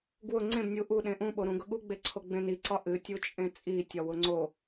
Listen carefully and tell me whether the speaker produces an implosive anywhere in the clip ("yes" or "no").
yes